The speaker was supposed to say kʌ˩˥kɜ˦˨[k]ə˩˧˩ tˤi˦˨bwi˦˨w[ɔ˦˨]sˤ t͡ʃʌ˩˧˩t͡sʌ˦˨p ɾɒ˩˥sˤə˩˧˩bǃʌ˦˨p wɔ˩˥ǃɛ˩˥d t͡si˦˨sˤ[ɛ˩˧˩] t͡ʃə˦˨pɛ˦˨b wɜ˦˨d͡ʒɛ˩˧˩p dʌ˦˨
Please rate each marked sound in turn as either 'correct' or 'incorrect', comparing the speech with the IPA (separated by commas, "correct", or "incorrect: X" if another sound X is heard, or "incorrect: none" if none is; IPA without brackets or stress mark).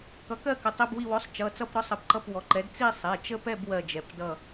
correct, incorrect: ɔ˩˥, correct